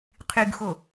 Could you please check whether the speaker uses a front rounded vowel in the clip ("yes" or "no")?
yes